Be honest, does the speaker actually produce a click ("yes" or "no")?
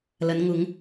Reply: no